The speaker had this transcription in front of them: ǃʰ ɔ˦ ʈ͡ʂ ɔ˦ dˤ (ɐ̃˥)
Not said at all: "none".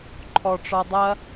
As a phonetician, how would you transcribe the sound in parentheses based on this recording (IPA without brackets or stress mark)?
ɐ˥